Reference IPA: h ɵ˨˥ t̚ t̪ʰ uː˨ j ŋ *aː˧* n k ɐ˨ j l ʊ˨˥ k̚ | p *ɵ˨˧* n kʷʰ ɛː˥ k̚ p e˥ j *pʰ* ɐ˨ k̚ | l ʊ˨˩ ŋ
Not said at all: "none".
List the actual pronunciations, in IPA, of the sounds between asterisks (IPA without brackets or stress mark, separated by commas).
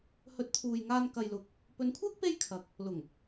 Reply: aː˧, ɵ˨˧, kʰ